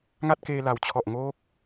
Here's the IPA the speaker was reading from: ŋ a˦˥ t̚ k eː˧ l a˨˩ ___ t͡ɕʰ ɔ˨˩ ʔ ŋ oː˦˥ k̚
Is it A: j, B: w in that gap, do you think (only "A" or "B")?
B